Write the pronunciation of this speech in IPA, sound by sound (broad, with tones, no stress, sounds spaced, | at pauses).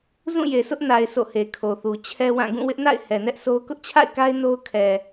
z ũ˦˨ j e˨ sʰ ʊ˦ ʔ n a˨ ɪ̯ s o̰˦˨ h e˨ kʰ o˨ θ u˨ t͡ɕʰ ɛ˦ w ã˦˨ ɡ ũ˦˨ w ɪ˦ ʔ n a̰˦˨ ɪ̯ h ɛ˨ n ɛ˦ ʔ s o˦ ʊ̯ k ʊ˦ ʔ t͡ɕʰ a̰˦˨ ɪ̯ k a˦ ɪ̯ n o˦ ʊ̯ kʰ ɛ˨